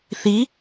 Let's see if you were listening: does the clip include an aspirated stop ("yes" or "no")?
no